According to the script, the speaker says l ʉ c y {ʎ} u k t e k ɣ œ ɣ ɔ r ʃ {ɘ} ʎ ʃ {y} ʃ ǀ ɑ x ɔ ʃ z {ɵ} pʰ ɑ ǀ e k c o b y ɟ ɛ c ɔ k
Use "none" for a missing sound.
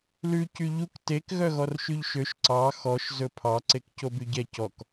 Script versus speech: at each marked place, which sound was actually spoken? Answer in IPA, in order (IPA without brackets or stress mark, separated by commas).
ʎ, ʉ, ø, ɵ